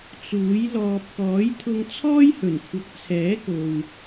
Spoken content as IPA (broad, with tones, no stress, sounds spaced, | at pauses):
t͡s uː˨˥ j l ɔː˧ p̚ k ɔː˨˥ j t̪ʰ ʊ˧ ŋ t͡sʰ ɔː˥ j h ɵ˨˩ n kʷʰ ɐ˨˥ k̚ t͡sʰ ɛː˨˥ k o˨ w